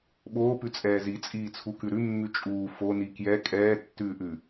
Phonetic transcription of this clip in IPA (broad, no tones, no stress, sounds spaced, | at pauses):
ɓ oː p ʉ t͡sʼ ɛː z i t͡sʼ iː t͡sʰ u k ʉ ɾ ʉ mː ʉ t͡ʃʼ uː f o n i k j ɛ kʼ ɛː tː ʉː ʔ ʉ